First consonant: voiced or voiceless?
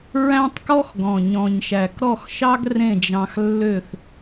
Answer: voiced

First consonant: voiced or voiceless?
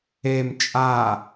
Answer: voiced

